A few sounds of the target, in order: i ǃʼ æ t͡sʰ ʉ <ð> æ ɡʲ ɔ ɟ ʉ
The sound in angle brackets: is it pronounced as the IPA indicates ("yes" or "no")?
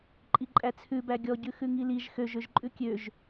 no